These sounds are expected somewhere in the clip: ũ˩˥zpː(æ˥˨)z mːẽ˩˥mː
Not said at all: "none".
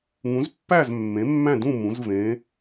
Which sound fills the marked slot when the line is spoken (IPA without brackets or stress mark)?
æ˥˨